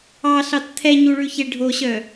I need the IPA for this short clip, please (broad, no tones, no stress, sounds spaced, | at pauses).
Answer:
ɑ ɬ ɑ t t̪ʰ ɛ ɲ u ɭ ʉ ç e ɖʱ o ɕ œ